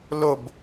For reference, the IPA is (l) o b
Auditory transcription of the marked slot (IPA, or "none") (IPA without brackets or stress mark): l